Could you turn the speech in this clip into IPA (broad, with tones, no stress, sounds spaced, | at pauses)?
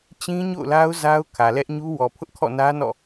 t͡ɕ ĩ˦ ɲ o̰˦˨ ʊ̯ l a˦ ʊ̯ z a˦ ʊ̯ kʰ ä˨ l ɛ˦ ʔ ɲ u˦ w ɔ˨ pʰ ʊ˦ ʔ kʰ ɔ̰˦˨ n ä˦ n ɔ̰˦˨